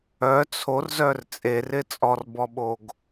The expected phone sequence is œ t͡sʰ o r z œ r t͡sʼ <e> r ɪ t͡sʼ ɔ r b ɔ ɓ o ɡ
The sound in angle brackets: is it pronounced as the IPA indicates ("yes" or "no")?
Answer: yes